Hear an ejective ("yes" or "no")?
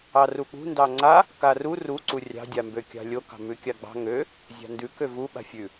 no